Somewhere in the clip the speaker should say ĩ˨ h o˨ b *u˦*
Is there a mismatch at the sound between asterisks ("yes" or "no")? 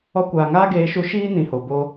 yes